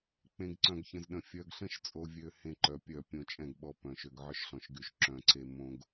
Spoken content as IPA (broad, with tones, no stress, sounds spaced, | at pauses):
k͡p ẽ˨ ɡ ǀ œ̃˨ ɡ ç ə̃˨ z ɗ ə̃˨ fʲ œ˨ ɡ ɬ ə̃˦ ʃ t͡sʼ o˨ vʲ ø˨ h ẽ˦ ǃ œ˨ pʲ œ˦˨ pʲ õ˦˨ t͡ʃʼ ɛ̃˦˨ ɡ ɓ ɔ˦ p œ̃˨ ʃ ø˨ ɡ ʕ œ˦ ʃ ɬ ɔ̃˨ ʃ ɡ y˨ ʃ ǁ œ̃˨ ǀ e˦ m õ˦ ɡ